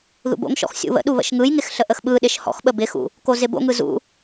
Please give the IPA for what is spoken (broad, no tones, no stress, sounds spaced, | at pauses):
ð ṵ b o̰ ŋ ʃ ɔ̰ x sʲ ṵ β ə̰ ɗ u β ə̰ ʃ ŋ ɯ j ŋ ɪ x ɬ ə ʔ ə x ɓ ɯ ɗ ɪ ʃ h ɔ̰ x ɓ ə b ɪ x ṵ | k o z ɪ b o̰ ŋ ɯ z ṵ